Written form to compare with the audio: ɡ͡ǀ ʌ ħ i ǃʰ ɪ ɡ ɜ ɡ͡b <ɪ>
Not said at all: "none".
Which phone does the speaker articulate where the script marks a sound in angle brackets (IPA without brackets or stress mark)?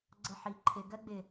ɪ